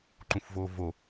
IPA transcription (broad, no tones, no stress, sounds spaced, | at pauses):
ǃ ũ f v oː v o